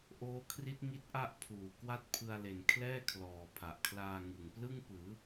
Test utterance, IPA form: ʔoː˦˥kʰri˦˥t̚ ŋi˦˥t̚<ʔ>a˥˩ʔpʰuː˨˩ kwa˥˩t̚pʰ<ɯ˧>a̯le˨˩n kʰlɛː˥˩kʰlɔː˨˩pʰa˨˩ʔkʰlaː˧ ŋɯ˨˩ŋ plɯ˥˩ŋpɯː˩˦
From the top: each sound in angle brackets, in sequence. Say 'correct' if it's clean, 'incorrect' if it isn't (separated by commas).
correct, correct